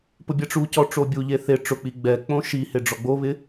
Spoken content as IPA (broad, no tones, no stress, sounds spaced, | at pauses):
p ʊ bʲ ɛ ʈ͡ʂ u c ɔ ʈ͡ʂ o bʲ u ʎ e θ e ʈ͡ʂ ʊ k͡p i ɡ͡b ɛ k͡p õ ʃ i h e ɖ͡ʐ ɔ ɡ͡b o β ɪ